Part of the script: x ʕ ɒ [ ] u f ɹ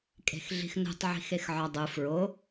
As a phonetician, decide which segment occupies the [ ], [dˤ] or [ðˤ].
dˤ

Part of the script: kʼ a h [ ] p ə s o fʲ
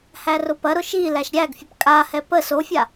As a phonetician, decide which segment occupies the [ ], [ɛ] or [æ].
ɛ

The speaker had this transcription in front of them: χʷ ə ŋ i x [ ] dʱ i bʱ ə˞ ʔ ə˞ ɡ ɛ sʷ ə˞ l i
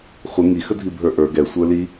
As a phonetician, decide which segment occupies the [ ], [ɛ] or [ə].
ə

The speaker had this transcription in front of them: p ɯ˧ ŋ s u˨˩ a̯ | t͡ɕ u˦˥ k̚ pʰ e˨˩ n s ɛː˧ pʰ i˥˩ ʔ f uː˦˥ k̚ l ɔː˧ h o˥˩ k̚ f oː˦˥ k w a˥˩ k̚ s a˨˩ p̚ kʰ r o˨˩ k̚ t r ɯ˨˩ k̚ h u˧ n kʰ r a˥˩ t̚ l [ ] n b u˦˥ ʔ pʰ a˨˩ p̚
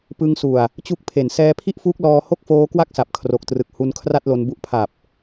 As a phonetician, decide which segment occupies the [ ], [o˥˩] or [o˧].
o˧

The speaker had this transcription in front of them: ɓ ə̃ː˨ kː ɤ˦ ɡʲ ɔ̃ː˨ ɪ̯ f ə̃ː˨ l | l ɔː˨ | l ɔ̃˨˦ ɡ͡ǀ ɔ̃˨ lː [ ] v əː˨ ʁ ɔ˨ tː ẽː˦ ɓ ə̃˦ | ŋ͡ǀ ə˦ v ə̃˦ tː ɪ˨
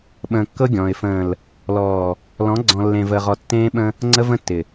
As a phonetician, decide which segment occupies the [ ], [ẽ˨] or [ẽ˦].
ẽ˨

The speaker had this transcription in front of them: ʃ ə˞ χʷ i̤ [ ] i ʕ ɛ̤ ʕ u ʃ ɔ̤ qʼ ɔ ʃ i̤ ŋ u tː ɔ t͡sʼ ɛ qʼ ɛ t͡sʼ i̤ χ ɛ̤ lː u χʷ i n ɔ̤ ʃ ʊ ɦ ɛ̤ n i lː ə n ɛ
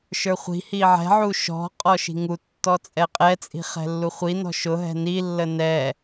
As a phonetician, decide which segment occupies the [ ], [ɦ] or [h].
h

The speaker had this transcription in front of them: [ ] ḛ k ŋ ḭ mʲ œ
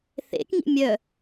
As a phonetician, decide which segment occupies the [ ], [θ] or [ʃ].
θ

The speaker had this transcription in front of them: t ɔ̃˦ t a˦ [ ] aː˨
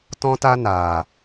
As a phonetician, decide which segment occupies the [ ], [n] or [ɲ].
n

